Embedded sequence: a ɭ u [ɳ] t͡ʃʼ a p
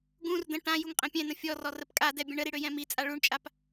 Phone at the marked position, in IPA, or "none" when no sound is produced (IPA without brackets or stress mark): ɳ